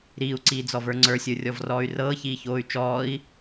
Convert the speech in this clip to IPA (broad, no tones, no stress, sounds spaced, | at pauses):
ɾ iː u̯ ǀ iː d͡z ɔ v ə˞ ŋ͡ǀ ə˞ sʲ ə˞ rʲ ɔ v r ɔː y̯ r ɤː ç iː ç oː y̯ t͡ʃ ɔː i̯